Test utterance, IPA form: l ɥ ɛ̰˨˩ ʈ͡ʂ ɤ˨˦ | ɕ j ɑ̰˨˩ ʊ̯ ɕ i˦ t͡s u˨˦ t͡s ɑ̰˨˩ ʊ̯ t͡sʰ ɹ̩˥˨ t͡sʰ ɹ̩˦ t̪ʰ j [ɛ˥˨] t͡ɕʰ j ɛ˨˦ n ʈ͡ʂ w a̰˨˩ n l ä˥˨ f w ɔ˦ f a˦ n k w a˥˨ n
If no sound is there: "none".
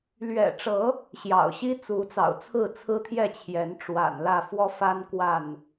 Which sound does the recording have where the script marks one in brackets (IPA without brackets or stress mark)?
ɛ˥˨